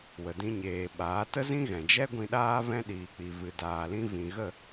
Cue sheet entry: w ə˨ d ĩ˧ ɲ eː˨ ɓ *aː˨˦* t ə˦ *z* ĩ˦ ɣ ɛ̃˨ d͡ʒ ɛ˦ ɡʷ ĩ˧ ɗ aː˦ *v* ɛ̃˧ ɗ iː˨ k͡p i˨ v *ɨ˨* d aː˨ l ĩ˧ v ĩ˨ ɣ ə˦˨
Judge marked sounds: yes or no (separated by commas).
yes, yes, yes, yes